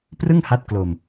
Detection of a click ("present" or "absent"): absent